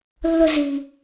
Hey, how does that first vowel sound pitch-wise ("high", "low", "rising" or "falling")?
high